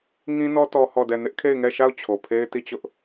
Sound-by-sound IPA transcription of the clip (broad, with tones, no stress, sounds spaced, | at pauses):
ŋ ĩ˦ n ɔ˦ t ɔ˦ h ɔ˦˨ d ɛ˦˨ n ɪ˦ ʔ kʰ e˦˨ ɪ̯ ŋ ɛ˦˨ ʃ a˦˨ ʊ̯ t͡ɕʰ o˨ pʰ e˦ ɪ̯ t i˦˨ t͡ɕ ʊ˦ ʔ